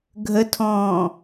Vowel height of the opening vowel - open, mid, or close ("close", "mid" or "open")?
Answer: mid